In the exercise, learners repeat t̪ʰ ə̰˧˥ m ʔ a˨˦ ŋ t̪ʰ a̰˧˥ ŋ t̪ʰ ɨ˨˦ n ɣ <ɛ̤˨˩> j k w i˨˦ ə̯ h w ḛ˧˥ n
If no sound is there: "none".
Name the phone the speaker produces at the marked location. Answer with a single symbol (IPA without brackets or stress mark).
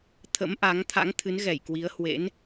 ɛ˧˩